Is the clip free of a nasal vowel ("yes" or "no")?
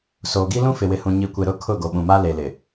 no